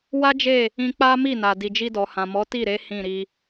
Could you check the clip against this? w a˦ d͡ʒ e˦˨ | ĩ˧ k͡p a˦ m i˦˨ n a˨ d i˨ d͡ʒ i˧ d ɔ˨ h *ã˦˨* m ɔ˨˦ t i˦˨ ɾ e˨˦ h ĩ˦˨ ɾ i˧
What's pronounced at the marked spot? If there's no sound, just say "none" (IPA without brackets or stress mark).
ã˨